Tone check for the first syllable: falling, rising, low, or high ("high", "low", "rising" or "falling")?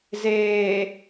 low